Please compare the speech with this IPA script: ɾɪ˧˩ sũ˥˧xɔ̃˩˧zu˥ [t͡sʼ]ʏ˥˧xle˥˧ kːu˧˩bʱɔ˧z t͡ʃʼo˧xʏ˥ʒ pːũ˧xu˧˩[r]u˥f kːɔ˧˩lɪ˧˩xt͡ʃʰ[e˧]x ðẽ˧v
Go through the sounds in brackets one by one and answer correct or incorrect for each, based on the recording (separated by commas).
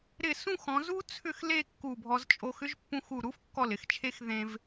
incorrect, incorrect, correct